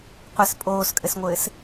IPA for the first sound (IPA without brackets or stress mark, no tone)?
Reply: qʷ